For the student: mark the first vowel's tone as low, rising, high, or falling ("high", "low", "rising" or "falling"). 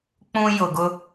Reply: high